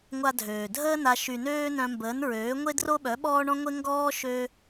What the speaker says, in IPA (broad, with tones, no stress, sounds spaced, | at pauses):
ŋʷ a˧ dʱ øː˨ dʱ əː˦ n a˧ ʃ y˨ n øː˧ n œ̃˧ m b əː˨˦ n ɹ øː˨˦ ŋʷ e˦ d r o˦ ɓ œ˨˦ ɓ ɔː˦ ɳ ɔ̃˦ ŋʷ e˦ ŋ ɡ ɔː˦ ʃ ø˦